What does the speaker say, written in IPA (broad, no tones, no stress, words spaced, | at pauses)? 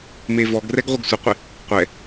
mevɔɡrɛɡ ʁʷɪɡsʷɪqʷɪ | qʷɛ